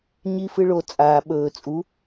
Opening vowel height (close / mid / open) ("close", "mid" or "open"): close